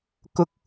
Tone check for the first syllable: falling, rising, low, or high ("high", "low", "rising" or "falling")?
rising